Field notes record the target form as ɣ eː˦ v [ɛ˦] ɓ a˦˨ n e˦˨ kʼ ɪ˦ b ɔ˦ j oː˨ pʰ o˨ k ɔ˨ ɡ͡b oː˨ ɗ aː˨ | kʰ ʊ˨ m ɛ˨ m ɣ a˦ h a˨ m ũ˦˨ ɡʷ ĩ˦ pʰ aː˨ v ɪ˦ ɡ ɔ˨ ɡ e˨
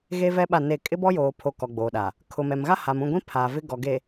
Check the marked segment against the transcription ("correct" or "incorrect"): correct